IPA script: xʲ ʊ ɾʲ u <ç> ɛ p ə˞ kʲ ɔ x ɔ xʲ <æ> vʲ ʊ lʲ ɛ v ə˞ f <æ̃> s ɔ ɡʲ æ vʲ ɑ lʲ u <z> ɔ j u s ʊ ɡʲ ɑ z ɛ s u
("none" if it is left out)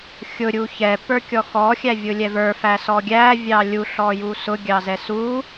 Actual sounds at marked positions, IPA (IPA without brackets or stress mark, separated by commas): ç, æ, æ, ɬ